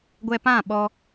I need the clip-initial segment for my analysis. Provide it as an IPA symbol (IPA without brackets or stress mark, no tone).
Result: ɡʷ